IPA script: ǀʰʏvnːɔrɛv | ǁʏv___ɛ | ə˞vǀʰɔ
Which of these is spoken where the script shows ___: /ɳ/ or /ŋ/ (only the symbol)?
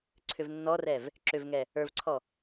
ŋ